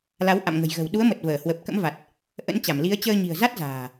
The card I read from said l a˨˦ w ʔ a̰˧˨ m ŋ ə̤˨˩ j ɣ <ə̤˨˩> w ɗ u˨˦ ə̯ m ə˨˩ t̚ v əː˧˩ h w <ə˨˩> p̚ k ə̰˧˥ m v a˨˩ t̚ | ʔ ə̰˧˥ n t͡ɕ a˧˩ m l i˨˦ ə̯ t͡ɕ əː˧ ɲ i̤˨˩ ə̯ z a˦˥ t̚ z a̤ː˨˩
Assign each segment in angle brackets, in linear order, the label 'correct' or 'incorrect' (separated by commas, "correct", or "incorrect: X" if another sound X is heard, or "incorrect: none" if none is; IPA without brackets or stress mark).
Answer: correct, correct